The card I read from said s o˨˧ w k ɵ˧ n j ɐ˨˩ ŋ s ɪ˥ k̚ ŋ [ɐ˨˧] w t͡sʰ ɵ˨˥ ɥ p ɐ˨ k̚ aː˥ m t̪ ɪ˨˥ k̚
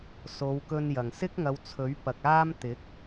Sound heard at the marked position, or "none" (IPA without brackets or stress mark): ɐ˨˧